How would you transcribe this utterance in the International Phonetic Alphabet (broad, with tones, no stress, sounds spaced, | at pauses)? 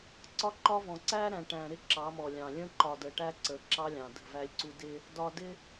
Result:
ǀ ɒ˦ ǃ ɒ˦ v ɔ̃˨ ǀ æ˦ ɾ æ̃˨ ʈ æ̃˨ ɾ ɪ˦ ǁ ɑ˨˦ m ɔ˨ lʲ ɑ̃˨ lʲ ə̃˦ ǃ ɒ˨ d ə˨ ʈ æ˦ ǀ ə˨˦ ǁ ɑ˦ lʲ ɑ̃˨ d ə̤˦˨ v æ˦ lʲ ǀ u˦ d ɪ˦ | d ɒ˨ d ɪ˦